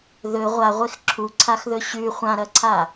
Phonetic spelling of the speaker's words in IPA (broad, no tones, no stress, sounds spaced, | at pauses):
ð ɵ ʁʷ a ʁʷ e x ǁʰ u ǀʰ a x ð ɵ ɕ ʉ χʷ ã ɾ ɐ ǀʰ a